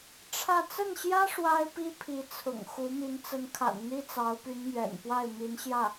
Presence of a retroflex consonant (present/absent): present